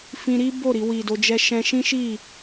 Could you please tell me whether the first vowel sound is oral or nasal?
nasal